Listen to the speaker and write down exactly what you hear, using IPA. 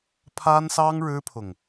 pʰ a˥ n s ɑ˥ ŋ ɻ ɻ̩˥ pʰ ʊ˨ ŋ

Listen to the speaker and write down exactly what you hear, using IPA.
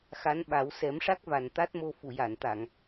x a˧˥ n ɓ a˨˩˦ w s ɛ˨˩˦ m ʂ a˦˥ k̚ v a˨˩ n t̪ a˦˥ t̚ m o˧ f u˨˩˨ j a˨˩˨ n t̪ a˨˩˨ ŋ

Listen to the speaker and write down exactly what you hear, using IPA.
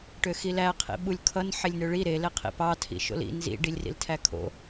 ʈ ø x i l æ qʰ ḭ ɓ u lʲ kʰ ʌ n ħ e lʲ n ø ɭ i ɾ e l e qʰ ḭ p ɑ tʰ ḭ ʃ o̰ l ḭ n z ḭ ɖ i lʲ r ḭ l tʰ æ kʰ o̰

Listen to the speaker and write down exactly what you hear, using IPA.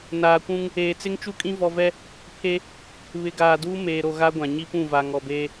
n aː˨ kʷ ũ˦ ŋ | eː˨ t͡s ɪ˦ ŋ t͡ʃ u˦ kʼ ĩ˦ v ɔ˦ v ɛ˦ | pʰ e˦ | β ɪ˨ ɡ aː˨ d uː˦ m eː˨ ɾ o˨ ɣ a˦ ɡʷ ã˨ ɲ i˦ p ũ˦˨ v a˨ ŋ ɔ˨ b eː˦

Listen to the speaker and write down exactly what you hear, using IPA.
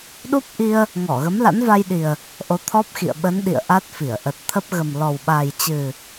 ɗ u˦˥ p̚ ʔ i˧ ə̯ | ŋ ɔ˧˩ ɣ ə˨˦ m l a̰˧˥ n v a˧ j ɗ i˨˩ ə̯ | ʔ o˨˦ t̪ʰ ɔ˦˥ p̚ x ḭ˧˨ ə̯ ɓ ə˨˦ n ɗ ḭ˧˨ ə̯ ʔ a˦˥ t̚ f i˧˩ ə̯ ʔ ə˨˩ t̚ t̪ʰ ə˦˥ p̚ ɣ ə˨˩ m l ɔ˨˩ w ɓ a˨˩ j t͡ɕ ɨ˨˩

